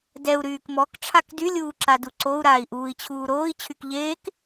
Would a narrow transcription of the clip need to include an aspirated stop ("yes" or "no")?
yes